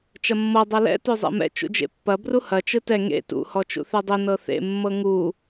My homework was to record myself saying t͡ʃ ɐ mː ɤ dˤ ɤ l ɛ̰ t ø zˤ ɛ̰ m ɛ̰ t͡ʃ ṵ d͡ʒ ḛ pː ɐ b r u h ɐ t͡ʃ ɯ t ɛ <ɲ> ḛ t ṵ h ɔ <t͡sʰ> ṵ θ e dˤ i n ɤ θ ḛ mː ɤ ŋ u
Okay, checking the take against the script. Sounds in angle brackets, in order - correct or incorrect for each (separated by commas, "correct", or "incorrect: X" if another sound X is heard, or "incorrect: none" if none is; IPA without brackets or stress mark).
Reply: incorrect: ŋ, incorrect: t͡ʃ